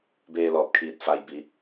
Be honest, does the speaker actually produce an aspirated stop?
yes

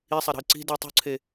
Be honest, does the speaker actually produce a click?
yes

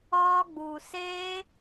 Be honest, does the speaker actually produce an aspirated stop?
no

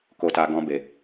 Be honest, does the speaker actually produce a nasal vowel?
yes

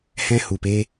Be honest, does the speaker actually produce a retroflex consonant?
no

